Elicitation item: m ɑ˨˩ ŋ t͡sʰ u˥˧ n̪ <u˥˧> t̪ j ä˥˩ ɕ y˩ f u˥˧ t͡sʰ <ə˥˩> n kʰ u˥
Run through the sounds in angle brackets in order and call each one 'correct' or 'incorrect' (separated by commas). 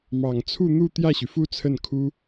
correct, correct